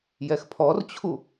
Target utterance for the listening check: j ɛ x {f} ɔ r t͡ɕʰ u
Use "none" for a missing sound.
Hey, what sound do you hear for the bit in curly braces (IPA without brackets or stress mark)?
pʰ